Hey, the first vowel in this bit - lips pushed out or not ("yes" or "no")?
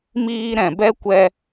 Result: no